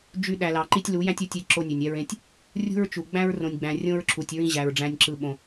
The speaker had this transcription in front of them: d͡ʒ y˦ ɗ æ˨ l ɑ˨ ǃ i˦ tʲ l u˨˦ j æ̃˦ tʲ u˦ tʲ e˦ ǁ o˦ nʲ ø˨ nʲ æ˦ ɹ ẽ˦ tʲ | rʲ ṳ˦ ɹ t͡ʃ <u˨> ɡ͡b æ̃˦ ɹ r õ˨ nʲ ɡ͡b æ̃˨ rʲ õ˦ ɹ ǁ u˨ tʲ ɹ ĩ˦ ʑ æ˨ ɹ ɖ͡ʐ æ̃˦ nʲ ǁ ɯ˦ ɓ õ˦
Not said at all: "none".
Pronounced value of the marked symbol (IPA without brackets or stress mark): u˨